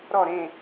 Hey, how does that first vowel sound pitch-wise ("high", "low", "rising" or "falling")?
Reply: falling